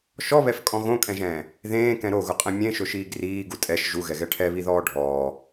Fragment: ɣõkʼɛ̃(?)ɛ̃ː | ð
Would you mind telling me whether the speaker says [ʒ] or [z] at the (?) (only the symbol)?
ʒ